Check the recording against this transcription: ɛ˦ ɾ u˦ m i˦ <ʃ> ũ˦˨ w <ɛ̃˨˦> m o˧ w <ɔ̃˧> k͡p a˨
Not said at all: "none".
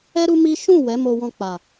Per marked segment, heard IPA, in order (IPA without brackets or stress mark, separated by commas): ʃ, ɛ˨˦, ɔ̃˧